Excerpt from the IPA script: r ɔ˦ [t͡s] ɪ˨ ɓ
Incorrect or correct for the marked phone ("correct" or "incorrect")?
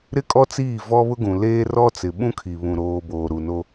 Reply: correct